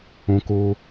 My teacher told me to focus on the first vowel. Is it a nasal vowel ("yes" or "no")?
yes